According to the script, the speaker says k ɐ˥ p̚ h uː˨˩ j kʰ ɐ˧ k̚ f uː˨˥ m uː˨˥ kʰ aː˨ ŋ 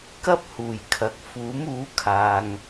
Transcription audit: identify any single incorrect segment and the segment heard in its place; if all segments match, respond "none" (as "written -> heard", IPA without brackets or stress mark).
none